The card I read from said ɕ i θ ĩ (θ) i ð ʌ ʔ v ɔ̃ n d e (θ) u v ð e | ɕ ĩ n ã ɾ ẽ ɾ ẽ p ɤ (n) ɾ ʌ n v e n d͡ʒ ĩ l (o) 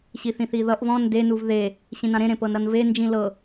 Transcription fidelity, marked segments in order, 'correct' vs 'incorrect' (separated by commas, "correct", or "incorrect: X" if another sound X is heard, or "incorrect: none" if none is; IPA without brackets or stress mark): correct, incorrect: n, correct, incorrect: ɤ